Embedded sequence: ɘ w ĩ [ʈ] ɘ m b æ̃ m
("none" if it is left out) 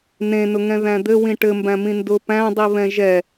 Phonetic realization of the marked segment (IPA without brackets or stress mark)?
ʈ